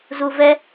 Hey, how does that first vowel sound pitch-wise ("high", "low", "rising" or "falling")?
low